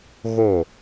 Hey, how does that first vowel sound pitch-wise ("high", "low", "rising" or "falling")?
falling